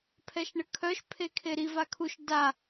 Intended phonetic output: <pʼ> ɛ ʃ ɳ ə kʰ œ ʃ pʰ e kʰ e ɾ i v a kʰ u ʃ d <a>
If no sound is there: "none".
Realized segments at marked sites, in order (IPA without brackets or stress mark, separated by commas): pʰ, a